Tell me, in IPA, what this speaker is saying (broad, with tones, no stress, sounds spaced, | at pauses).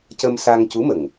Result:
c ə˧ m s a˧ ŋ c u˧˥ m ə˨˩ ŋ